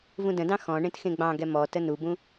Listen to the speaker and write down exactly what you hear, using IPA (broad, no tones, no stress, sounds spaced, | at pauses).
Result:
v ũ d ə̃ d ɑ̃ x ɔ̃ ɳ ẽ t x ẽ ɡ͡b ɑ̃ ɡ ɛ m ɔ t ə n u b ũ